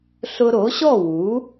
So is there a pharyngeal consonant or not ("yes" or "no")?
no